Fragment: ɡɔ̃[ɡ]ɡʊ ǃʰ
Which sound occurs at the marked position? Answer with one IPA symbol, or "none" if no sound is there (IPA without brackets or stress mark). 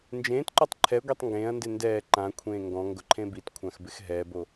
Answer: ŋ